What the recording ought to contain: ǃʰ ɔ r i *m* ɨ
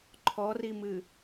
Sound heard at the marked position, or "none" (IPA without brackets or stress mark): m